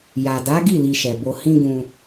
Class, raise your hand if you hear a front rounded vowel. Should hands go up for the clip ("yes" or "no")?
no